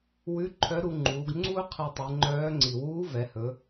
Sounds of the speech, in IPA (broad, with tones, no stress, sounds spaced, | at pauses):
w ʉ˧˥ ǃʰ œ˧˥ ɾ u˧ ŋ͡ǃ uː˩˧ ɡ ŋ͡ǀ u˥ qʰ i˧ tˤ ɨ˩˧ ŋ͡ǃ œː˧˥ ŋ͡ǀ i˩ w uː˧˥ v ɛ˩˧ h ɵ˩˧